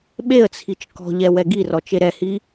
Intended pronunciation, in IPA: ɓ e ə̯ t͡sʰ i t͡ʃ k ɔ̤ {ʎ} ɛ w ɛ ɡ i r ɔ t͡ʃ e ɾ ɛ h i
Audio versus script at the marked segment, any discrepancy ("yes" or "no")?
no